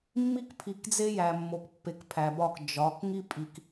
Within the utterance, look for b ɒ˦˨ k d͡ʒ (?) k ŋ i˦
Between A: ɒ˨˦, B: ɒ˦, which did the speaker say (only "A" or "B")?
A